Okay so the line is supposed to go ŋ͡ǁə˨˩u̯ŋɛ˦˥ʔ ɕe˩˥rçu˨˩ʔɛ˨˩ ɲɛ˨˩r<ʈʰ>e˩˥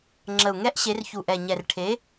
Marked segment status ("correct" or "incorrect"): correct